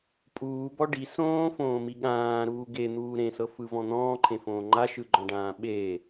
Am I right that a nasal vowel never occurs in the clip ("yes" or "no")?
no